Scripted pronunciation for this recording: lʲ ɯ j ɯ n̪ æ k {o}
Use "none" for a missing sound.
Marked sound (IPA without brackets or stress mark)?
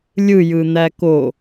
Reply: o